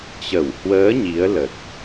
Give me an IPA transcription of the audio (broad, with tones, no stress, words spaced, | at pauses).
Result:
t͡ɕə˧˩w hwəː˨˦ ɲi˨˦ə̯lə˨˩t̚